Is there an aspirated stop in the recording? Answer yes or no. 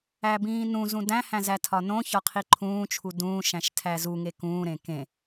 yes